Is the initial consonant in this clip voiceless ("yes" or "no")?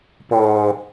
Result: yes